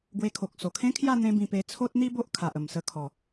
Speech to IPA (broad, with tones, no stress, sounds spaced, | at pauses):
ɡ w e˧ kʰ o˨ k̚ s o˨˩ kʰ ẽ˦ kʰ j a˥˧ n̪ ẽ˦ b ĩ˧ p e˧ t͡sʰ o˦ t̚ n̪ i˦ b o˦ ʔ kʰ a˨ ʔ ə˨˩ m s ə˧ kʰ ɔ˨˩